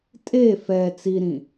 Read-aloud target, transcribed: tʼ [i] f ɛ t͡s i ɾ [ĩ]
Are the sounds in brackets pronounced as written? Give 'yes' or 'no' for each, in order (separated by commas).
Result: no, yes